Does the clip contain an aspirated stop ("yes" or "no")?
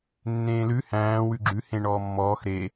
no